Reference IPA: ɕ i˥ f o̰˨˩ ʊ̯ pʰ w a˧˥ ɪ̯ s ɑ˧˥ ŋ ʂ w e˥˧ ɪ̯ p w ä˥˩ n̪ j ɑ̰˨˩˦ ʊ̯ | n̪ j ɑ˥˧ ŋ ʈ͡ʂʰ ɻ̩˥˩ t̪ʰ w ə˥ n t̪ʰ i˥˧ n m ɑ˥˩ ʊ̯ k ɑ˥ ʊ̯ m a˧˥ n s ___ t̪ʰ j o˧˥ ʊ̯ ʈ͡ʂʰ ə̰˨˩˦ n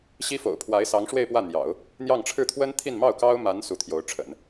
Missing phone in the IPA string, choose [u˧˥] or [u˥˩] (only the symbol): u˧˥